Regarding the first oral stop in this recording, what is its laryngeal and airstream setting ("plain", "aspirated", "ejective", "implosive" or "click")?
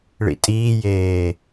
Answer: ejective